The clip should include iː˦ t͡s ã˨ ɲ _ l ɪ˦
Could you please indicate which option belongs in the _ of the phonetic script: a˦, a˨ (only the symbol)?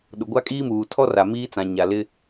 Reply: a˨